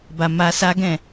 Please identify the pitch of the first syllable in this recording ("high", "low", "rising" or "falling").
low